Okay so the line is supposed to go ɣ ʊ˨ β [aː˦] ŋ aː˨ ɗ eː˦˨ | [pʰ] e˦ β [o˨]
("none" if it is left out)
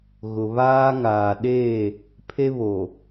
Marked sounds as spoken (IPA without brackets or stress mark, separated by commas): aː˦, pʰ, o˨